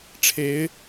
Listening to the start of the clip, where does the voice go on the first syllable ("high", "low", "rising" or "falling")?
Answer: rising